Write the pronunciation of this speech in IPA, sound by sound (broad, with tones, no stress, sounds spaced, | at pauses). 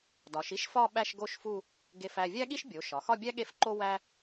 d ɒ˩˧ ʃ i˥ ʃ f ɒ˥˧ ɓ æ˥˧ ʃ ɡ o˥˧ ʃ f u˥˧ | ɡ e˥˧ f æ˥˧ vʲ æ˥ ɠ i˥ ʃ bʲ o˩˧ ʃ ɒ˩˧ x ɒ˥˧ bʲ æ˥ ɠ e˥˧ f ǃ o˥ w æ˥